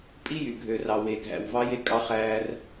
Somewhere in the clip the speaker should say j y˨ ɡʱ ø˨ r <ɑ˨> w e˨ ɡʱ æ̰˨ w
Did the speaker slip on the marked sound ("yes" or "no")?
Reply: no